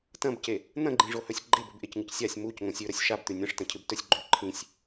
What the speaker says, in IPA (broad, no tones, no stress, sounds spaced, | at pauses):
t ɐ̃ b c e | n̪ ɐ̃ ɡ͡ǃ ĩ ʐ o h ɵ sʲ ɡ͡ǃ e b ɵ b ʔ e c ŋ ɨ c sʲ a sʲ m u c ŋ õ sʲ ʉ ɾ ɐ sʲ ʃ a b t̪ ʉ nʲ ɐ̃ ʂ t ɐ̃ cʰ ɨ b t ɵ sʲ ɡ͡ǃ ʉ ǃʰ ĩ sʲ